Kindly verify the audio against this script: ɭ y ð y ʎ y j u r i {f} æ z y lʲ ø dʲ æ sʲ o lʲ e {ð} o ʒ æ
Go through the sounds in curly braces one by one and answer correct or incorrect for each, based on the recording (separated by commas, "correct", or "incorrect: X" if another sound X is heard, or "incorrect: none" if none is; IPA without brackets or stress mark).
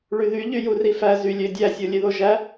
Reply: correct, correct